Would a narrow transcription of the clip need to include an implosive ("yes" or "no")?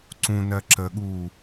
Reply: yes